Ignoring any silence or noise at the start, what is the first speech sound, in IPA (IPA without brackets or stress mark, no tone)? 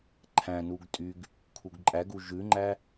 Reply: ǃʰ